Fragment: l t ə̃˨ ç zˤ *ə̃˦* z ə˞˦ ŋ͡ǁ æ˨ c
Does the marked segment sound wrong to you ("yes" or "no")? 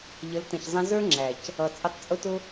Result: yes